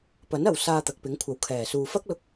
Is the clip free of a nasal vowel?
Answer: yes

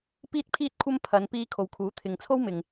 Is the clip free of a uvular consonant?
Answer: yes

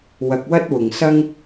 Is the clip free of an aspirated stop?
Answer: yes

